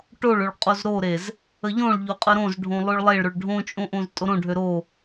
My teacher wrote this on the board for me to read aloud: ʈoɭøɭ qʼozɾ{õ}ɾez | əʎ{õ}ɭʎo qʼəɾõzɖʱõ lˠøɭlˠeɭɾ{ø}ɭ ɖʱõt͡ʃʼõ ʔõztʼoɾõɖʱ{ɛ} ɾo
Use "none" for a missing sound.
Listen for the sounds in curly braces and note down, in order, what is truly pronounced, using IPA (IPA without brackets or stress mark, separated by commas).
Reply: o, õ, ø, ø